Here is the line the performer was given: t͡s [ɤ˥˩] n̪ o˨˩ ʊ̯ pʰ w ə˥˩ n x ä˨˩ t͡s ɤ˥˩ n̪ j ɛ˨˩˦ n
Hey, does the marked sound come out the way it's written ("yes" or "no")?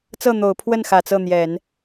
yes